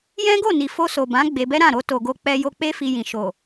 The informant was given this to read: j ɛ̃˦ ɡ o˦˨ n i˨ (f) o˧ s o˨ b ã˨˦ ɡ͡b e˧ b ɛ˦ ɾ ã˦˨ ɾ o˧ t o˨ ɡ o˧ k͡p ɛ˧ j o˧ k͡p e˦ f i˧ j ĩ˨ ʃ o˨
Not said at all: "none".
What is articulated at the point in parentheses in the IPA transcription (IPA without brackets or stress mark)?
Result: f